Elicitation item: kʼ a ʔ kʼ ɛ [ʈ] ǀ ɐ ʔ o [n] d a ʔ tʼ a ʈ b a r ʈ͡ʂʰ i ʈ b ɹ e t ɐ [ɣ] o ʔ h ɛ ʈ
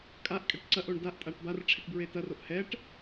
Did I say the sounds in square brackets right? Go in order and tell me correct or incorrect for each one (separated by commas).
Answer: correct, incorrect, incorrect